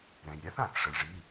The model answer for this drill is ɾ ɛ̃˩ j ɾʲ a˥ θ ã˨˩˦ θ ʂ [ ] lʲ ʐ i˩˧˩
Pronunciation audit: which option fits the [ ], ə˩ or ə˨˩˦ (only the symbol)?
ə˩